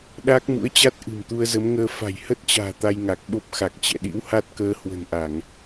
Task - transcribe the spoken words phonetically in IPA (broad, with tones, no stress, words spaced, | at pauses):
ɗaː˦˥k̚mṵ˧˥ə̯t͡ɕa˦˥t̚ ʔɨ̤˨˩mt̪u˧ə̯zə˨˦mŋəː˧ fa̤˨˩jhə˦˥t̚t͡ɕa̤ː˨˩ t̪a˧jŋa˨˩k̚ɓo˦˥p̚ xa˨˩k̚ t͡ɕɛ̰˧˨ɗḭ˧˥w ha˦˥t̚kəː˧ hwə̤˨˩nʔa˧˩˨ŋ